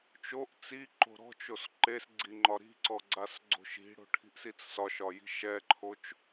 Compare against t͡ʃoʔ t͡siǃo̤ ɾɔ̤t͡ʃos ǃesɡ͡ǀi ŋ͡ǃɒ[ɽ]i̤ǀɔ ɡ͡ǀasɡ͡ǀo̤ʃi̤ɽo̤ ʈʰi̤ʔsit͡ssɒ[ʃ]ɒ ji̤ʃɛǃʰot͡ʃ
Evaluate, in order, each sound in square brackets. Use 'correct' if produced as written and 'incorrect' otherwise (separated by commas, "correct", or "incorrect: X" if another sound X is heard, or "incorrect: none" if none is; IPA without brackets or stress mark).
incorrect: ɾ, correct